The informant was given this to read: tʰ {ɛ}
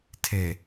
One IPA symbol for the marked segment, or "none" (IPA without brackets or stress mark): e